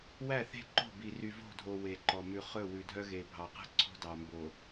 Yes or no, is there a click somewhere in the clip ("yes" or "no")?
yes